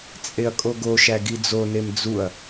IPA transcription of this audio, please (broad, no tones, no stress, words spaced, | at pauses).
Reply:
t͡sʼeɐ̯kʼoɡoʃæ ɡid͡zonem d͡zuɐ̯